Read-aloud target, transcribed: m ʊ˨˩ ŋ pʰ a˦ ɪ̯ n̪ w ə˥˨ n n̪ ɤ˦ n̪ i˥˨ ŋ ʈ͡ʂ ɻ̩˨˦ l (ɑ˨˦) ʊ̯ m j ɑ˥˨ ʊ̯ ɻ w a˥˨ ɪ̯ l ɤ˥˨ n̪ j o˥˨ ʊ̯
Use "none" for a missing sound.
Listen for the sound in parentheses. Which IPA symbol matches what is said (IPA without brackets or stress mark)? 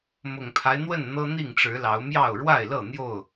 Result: ɑ˨˦